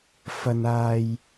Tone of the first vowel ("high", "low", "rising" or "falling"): low